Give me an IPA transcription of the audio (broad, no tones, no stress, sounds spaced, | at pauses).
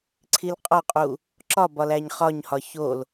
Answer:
ǀʰ i l qʼ ɒ qʼ u | ǁ ɒ b ɒ l æ ɲ χ ɒ ɲ h ɒ ç o l